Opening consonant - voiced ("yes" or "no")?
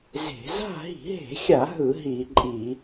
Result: yes